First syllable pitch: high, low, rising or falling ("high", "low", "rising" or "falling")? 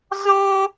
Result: high